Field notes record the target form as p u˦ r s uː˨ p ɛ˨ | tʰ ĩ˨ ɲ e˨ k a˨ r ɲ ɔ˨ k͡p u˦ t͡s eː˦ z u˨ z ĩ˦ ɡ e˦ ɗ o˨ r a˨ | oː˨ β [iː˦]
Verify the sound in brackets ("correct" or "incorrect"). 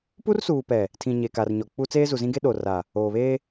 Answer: incorrect